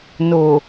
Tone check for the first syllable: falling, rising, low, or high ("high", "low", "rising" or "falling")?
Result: low